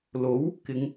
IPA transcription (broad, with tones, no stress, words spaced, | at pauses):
lo˨˥w | kɪ˨˧ŋ